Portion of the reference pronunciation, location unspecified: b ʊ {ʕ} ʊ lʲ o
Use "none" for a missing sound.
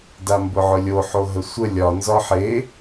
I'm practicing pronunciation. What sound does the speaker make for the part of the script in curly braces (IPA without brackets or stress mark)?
ʕ